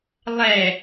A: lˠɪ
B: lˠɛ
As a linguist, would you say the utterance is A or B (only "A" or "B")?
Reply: B